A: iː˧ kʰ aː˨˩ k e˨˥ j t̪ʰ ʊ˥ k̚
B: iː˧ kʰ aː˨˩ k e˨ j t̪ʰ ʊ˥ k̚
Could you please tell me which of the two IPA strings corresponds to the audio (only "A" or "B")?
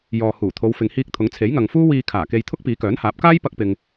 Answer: B